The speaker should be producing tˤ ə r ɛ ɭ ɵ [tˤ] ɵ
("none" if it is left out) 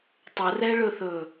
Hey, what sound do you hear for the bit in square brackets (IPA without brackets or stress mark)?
θ